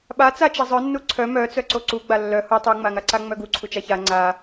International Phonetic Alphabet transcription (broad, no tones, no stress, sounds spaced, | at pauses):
ɓ a t͡s a t͡ʃ ɛ zˤ œ nː u ǀʰ œ m œ t͡s œ ǀ o ǀ u ɡ͡b a lː œ h u tˤ u ŋ͡m a ŋ a ǀ a ŋ͡m œ ɡ u ǀʰ u t͡ʃ a ç a ŋ͡ǀ a